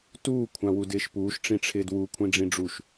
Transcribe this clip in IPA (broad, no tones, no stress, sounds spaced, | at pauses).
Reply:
t uː kʷʰ ã w u d ɪː ʃ p uː ʃ ʈ͡ʂ ĩ ʈ͡ʂʰ ɪː d w u kʷʰ ĩ ɖ͡ʐ ĩ ɖ͡ʐ u ʃ